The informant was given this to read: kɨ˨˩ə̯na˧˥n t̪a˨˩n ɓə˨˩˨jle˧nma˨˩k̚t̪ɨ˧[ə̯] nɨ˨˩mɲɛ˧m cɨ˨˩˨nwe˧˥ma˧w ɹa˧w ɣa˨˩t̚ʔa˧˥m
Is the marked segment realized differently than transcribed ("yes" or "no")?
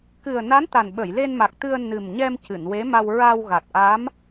no